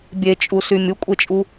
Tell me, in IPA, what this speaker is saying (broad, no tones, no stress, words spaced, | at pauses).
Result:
bʲet͡ʃʼusy mʲukʷʼet͡ʃʼu